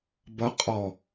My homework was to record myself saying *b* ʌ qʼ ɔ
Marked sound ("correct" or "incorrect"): correct